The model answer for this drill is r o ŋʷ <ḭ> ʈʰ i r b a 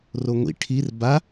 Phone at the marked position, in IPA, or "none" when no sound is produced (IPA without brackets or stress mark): ḭ